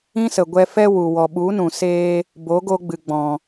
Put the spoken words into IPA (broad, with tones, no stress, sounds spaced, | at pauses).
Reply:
ĩ˦ s ə˨ ɡʷ ɛ˧ f ɛ˦ w u˨ w ɔ˨ ɓ u˨˦ n ũ˨ s eː˧ | b o˨˦ ɡ o˧ ɡ͡b ɨ˨ ɡ͡b ɔ̃˨